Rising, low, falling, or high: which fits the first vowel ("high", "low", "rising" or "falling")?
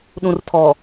low